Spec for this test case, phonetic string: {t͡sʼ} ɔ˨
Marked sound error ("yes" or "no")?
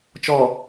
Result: yes